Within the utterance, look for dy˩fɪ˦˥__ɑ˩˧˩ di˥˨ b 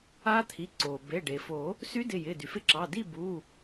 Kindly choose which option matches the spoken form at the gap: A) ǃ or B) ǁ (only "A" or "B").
B